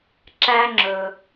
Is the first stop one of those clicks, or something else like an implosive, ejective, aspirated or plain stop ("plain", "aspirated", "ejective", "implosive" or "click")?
click